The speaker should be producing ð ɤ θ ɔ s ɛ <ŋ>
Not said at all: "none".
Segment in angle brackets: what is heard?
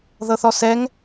ŋ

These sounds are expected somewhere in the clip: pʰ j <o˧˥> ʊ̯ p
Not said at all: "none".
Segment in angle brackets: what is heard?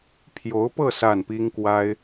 o˧˥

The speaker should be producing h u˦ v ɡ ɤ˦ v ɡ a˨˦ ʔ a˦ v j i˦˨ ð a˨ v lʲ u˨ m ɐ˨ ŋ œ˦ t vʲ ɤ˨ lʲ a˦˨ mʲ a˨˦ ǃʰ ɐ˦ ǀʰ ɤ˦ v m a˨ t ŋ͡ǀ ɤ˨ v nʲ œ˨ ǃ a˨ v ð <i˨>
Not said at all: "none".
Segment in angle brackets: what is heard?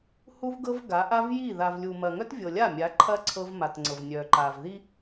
i˦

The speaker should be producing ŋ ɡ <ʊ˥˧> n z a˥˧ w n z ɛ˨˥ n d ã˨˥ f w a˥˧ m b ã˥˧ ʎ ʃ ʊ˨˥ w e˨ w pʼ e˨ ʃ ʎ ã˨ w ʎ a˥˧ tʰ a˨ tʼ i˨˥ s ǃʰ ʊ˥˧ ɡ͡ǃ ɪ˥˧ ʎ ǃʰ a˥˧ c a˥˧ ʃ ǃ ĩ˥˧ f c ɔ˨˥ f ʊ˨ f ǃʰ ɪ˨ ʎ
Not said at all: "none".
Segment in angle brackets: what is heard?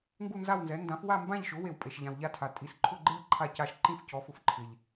u˥˧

